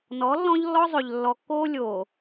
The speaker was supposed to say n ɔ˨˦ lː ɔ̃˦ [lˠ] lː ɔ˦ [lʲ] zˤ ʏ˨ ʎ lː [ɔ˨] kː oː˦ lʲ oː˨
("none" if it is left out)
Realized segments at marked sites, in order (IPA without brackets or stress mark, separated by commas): ʎ, none, ɔ˨